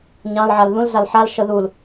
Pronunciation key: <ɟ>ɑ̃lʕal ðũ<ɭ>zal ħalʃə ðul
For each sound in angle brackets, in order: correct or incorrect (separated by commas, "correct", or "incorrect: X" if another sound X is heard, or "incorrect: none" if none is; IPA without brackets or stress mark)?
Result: incorrect: ɲ, incorrect: l